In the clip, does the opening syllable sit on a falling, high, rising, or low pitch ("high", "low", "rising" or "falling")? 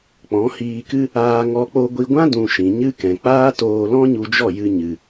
rising